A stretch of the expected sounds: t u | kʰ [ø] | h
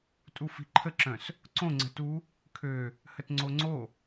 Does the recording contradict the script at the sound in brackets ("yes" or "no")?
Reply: no